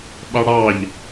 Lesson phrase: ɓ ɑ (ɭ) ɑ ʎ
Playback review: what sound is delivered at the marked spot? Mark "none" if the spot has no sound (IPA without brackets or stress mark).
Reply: ɽ